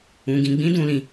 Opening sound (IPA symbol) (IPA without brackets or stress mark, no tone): ũ